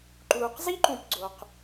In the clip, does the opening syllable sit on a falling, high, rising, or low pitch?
low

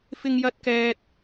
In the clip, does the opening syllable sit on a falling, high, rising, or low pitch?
high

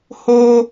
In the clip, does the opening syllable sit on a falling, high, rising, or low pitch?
high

